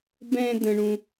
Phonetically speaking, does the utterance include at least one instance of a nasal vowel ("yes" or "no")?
yes